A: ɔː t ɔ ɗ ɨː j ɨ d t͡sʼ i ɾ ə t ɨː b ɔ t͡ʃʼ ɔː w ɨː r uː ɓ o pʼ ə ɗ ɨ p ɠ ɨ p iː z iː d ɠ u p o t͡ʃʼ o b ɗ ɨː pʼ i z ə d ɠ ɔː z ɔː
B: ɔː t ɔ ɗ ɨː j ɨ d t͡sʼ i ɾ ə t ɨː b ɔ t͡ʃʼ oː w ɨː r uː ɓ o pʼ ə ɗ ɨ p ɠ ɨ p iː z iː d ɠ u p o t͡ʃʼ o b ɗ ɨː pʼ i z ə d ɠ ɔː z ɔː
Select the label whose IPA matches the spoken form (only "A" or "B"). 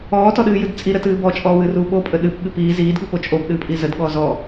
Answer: A